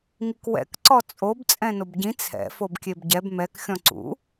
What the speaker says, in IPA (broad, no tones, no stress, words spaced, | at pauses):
ŋikwɛ̰k ǀɔt͡sʼob t͡sʼɛ̃nobɟĩ t͡sʰɛ̰ fobkʲebɟɛb mɛk xʲɔ̃ǀṵ